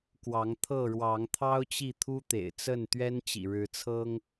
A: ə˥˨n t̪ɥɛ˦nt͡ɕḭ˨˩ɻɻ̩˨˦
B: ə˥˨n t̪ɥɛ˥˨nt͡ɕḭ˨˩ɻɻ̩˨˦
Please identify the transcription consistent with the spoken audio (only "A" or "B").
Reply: A